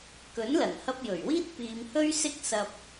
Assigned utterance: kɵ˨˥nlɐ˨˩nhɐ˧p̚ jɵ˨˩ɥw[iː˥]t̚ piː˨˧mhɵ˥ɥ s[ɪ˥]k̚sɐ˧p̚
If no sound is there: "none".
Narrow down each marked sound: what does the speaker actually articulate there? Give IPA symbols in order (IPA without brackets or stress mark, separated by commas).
iː˥, ɪ˥